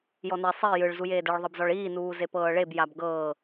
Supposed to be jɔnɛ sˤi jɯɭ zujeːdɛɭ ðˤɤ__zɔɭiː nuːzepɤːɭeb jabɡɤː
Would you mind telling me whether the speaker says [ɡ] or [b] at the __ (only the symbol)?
b